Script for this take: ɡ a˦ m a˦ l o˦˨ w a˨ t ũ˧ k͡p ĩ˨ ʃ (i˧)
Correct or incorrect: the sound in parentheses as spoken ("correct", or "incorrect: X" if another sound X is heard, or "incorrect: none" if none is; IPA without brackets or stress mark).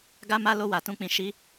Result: correct